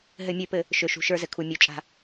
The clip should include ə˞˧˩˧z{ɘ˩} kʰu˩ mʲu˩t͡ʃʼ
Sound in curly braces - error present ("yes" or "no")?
no